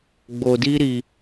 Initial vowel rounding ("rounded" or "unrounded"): rounded